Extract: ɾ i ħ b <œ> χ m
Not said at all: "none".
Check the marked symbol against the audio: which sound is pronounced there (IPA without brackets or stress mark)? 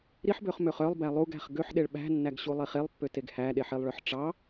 ø